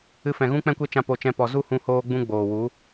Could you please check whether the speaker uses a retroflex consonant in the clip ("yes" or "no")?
no